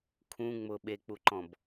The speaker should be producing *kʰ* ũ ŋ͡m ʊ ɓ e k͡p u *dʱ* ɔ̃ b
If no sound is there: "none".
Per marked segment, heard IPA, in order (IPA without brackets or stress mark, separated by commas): kʰ, ǃ